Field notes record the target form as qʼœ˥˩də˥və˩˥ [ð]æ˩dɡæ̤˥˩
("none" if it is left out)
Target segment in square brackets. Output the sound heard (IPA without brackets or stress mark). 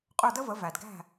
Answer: v